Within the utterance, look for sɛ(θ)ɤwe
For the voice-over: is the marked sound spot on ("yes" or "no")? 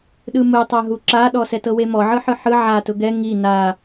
no